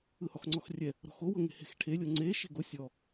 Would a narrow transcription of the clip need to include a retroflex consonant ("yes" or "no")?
yes